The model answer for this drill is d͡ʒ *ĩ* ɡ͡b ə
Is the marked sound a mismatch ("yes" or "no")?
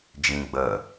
no